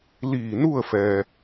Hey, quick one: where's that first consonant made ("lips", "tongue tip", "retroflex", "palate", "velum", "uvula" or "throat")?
tongue tip